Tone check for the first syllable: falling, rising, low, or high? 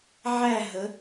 falling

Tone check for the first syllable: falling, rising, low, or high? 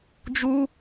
high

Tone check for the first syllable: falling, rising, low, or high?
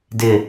low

